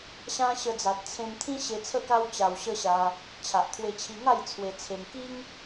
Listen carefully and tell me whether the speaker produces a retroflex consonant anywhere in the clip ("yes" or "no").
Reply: no